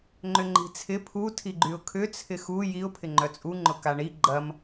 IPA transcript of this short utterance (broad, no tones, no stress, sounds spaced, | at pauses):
ŋ͡ǃ ʏ ŋ͡ǃ i̤ t͡sʰ ɪ pʰ u tʰ i ɡ͡ǃ y ʊ̯ kʰ ʏ t͡sʰ ɪ x u j i ʊ̯ pʰ ɪ ŋ͡ǃ œ t͡sʼ u ŋ͡ǃ ʊ k a ɳ i ɡ͡ǃ ɐ m